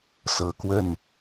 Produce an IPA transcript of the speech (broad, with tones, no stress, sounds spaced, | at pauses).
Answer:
s ɤ˨˩ k w ə˥˩ n